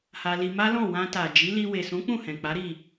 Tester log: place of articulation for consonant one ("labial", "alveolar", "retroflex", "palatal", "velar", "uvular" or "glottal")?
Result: glottal